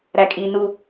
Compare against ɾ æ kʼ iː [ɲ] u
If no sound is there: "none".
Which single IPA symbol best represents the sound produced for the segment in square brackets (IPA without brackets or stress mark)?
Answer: n